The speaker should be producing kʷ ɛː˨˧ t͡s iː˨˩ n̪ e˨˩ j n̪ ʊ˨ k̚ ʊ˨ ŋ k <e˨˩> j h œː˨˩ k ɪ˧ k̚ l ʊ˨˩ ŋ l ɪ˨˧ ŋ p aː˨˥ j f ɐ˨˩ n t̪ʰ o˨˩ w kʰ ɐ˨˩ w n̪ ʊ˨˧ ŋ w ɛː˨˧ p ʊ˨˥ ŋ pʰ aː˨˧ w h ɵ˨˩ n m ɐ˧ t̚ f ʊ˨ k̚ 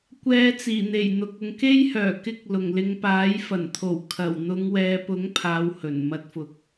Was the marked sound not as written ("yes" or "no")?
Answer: yes